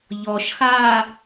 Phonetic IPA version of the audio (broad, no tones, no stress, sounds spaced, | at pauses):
ʎ ɔ ʃ x aː